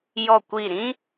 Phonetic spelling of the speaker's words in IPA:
jɔ˦˨kʷi˦˨ ɾĩ˦

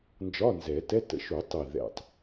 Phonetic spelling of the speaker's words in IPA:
nd͡ʒɒ˧˥˧nzɛ˨˩˦tɛ˧˥˧ tə̰˨˩ʃ u˨˩˦tˤi˨˩ ðɛ̰˨˩tˤ

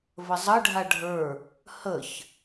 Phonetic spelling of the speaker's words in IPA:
vəzˤə ɖʱaɖʱə˞ | həç

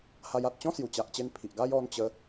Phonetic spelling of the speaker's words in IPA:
ha˧j a˨t̚t͡ɕɔ̃˦ sju˨˩t͡ɕa˨ʔt͡ɕe˧n pʰi˨ʔɡa˦j ɔ˧nt͡ɕə˧

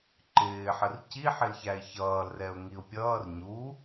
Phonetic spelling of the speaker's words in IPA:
ǃɪːħər ciħɪlçæɪ̯ çʌːlrɛʊ̯ŋiʊ̯ pʲʌːr ɲu

